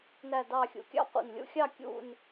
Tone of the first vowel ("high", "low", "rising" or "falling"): falling